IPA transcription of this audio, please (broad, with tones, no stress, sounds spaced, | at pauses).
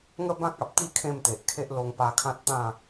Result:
ŋ ə˥˧ b ã˦ k̚ a˨ p̚ t̪ i˥˧ kʰ ẽ˥˧ m t̪ e˨ ʔ kʰ e˦ ʔ l o˧ ŋ p a˧ kʰ ã˦ t̚ t̪ ã˥˧